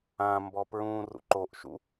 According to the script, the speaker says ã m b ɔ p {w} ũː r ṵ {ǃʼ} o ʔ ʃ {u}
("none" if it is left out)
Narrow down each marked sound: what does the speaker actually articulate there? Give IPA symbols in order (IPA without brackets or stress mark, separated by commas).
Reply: ɹ, ǃ, ṵ